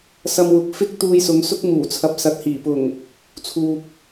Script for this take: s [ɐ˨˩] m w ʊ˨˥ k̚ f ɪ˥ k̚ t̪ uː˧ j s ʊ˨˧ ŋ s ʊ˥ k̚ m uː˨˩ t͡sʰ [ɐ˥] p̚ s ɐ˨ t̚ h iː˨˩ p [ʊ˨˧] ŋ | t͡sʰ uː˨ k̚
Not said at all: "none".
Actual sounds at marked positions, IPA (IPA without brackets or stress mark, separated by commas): ɐ˧, ɐ˨, ʊ˨˩